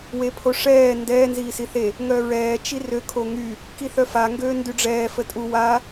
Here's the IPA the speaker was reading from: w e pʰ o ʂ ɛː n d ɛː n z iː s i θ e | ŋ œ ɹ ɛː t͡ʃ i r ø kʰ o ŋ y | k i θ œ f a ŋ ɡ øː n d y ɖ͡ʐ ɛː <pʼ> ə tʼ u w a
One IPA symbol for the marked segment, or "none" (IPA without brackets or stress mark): f